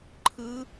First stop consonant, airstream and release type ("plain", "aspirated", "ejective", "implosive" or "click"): click